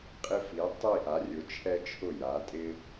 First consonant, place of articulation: uvular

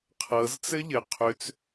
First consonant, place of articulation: uvular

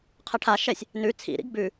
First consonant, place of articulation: uvular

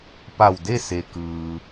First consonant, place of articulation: labial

